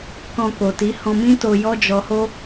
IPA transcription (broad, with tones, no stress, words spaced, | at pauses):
kɔ̃˧ko˨ti˨˦ hɔ̃˧mĩ˦ to˧jɔ˦d͡ʒɔ˧ho˦